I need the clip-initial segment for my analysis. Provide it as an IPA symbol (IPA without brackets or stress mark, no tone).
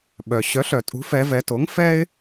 ɓ